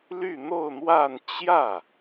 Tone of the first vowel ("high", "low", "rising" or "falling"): falling